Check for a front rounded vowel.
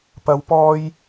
absent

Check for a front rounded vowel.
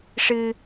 absent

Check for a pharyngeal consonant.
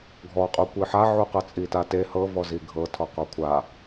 present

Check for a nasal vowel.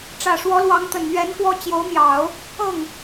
absent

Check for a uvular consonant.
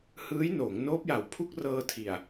absent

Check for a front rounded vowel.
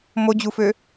present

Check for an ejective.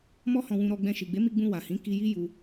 absent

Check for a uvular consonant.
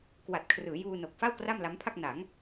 absent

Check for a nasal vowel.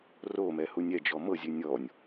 absent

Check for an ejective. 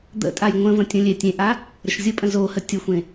present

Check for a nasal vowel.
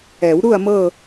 absent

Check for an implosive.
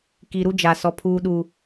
present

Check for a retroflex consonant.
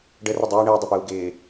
present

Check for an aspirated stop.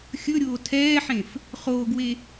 present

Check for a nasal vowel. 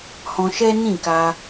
present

